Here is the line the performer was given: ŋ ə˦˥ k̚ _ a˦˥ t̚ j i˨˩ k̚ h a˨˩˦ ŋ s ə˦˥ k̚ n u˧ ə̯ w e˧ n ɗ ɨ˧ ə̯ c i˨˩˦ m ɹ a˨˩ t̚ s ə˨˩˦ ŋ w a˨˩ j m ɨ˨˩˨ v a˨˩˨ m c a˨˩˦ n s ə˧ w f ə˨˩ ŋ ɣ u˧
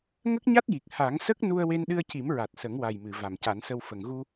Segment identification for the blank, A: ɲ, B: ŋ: A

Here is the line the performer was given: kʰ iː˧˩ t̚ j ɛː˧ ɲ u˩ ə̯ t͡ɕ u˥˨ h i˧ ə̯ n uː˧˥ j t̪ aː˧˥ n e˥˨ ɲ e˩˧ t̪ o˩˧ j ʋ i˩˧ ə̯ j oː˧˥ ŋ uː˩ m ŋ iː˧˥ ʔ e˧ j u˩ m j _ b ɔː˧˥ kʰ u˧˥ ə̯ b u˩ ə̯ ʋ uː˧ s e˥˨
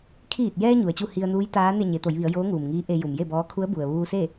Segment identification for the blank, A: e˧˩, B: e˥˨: B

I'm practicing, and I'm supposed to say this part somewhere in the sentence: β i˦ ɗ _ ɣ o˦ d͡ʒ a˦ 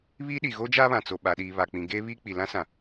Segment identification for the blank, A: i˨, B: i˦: A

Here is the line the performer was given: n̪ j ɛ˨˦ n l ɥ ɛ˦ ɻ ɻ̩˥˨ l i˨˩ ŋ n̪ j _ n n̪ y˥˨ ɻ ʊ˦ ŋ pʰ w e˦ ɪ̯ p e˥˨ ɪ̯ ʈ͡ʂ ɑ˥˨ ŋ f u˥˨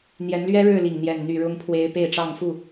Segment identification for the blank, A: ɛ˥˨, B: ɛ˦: A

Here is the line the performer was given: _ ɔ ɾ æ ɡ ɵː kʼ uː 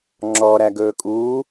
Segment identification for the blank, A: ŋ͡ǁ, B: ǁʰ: A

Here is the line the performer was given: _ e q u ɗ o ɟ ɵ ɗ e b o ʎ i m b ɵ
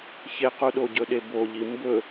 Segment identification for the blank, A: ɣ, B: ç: B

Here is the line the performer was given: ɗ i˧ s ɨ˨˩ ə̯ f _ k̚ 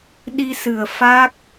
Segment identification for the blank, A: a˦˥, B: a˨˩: A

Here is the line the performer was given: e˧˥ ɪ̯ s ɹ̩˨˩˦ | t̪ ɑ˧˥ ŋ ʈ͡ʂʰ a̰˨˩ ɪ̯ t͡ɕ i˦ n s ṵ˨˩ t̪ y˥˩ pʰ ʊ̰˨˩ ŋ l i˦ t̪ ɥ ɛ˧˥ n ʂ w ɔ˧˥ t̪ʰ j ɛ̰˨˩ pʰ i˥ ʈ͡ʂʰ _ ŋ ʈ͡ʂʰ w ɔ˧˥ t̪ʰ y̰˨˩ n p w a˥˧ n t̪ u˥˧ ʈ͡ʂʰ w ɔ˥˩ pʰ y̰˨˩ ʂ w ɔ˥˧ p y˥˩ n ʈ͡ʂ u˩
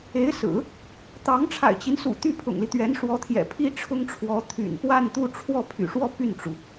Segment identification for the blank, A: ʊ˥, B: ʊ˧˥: A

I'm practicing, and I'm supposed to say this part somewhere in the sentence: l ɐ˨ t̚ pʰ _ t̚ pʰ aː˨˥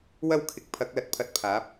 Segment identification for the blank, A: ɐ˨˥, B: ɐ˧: B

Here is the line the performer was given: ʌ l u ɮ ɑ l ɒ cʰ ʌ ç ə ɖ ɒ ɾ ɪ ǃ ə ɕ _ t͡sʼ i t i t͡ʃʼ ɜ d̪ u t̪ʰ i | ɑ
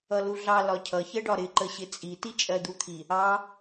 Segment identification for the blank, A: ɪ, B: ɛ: A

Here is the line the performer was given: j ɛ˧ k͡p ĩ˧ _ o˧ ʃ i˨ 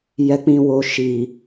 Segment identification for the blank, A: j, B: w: B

